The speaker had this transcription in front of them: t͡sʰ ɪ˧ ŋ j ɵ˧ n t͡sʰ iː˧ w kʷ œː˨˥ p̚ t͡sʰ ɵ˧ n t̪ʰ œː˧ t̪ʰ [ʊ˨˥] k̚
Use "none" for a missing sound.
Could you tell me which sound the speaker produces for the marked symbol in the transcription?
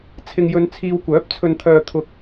ʊ˧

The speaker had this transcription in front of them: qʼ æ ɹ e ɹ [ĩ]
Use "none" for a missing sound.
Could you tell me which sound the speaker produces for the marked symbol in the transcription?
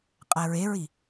i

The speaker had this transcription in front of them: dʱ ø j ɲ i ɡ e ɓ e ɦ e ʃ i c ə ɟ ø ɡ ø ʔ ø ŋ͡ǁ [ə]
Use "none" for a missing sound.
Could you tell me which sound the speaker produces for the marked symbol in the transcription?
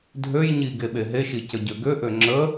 ə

